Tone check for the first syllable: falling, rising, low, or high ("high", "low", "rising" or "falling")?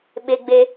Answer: high